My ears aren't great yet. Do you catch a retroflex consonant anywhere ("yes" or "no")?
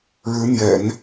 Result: yes